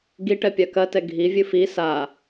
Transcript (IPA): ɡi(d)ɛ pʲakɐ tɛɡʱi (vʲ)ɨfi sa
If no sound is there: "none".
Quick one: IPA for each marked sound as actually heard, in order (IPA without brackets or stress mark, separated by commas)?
ʈ, vʲ